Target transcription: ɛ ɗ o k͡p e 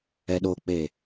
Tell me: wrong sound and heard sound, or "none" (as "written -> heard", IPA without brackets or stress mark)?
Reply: none